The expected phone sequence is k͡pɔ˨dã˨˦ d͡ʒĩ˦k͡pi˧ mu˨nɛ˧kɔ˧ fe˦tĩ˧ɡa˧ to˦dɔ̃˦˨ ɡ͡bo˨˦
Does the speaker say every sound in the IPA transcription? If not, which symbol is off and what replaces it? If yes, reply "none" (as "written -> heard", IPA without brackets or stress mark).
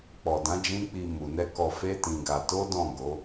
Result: ɡ͡b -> ɡ